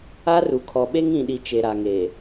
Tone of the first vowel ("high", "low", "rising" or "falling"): high